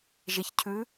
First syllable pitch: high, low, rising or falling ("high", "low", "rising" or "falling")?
low